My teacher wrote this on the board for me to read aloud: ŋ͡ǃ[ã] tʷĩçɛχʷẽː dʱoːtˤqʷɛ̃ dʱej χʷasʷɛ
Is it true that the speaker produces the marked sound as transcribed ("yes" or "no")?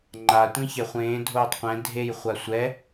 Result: no